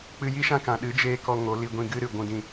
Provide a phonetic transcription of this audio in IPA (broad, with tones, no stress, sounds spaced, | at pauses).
k͡p ɨ˧ j i˦ ʃ ã˦ k ã˨ ɗ ɨ˨˦ d͡ʒ eː˧ k ɔ˧ ŋ o˨˦ l i˧ ɡʷ ĩ˧ ɡ ɨ˦ ɾ ɨ˨ ɡʷ ũ˧ d ĩ˧